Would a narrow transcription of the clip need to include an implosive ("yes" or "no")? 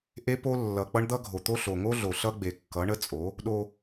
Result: yes